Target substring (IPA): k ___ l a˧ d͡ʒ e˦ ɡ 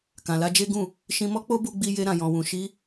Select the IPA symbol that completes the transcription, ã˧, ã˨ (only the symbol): ã˨